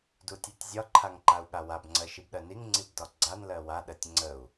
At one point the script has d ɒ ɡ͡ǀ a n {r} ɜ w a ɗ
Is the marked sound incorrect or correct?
incorrect